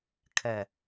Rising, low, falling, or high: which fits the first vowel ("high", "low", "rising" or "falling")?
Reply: low